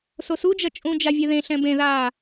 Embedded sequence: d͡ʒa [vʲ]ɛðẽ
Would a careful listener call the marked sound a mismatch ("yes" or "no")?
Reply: no